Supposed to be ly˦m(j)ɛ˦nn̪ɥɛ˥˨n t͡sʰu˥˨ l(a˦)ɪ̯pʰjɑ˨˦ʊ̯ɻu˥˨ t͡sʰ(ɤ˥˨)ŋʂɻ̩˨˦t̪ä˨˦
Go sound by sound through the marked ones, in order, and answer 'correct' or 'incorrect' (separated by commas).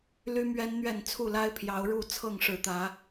incorrect, correct, correct